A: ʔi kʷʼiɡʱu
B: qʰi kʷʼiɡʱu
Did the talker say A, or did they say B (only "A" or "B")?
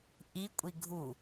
A